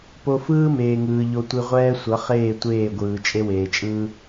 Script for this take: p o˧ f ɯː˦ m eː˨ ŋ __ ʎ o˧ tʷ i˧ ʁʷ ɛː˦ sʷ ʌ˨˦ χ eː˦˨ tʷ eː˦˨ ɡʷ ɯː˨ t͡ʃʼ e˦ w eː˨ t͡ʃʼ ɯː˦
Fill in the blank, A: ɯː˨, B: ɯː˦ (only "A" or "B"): A